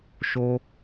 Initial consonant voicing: voiceless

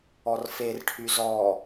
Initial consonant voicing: voiced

